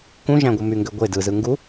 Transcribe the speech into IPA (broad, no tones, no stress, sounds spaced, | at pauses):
k ũ ʒ æ̃ ɡʷ ɯ m y ŋ ɡ ø ɡʷ e d ɯ z ɯ ŋ ɡ u